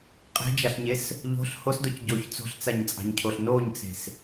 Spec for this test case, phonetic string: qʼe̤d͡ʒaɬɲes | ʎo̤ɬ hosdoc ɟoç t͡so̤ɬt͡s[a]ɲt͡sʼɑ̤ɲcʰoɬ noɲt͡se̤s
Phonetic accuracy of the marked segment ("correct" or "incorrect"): correct